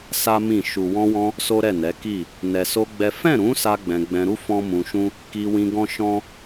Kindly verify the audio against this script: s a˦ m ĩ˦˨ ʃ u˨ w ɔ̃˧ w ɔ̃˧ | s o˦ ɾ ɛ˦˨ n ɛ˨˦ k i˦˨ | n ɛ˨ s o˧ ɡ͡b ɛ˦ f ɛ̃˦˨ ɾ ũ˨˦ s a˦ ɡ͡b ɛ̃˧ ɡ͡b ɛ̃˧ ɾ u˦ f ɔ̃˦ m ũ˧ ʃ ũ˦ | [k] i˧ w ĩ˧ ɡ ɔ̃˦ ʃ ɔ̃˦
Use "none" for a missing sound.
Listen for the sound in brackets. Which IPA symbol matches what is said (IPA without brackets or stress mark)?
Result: k